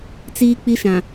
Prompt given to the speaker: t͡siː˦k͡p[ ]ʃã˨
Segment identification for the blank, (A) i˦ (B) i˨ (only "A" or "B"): A